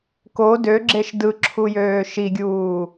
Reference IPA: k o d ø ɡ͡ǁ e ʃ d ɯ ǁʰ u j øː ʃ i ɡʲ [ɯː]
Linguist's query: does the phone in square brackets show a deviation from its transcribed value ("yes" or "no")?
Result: yes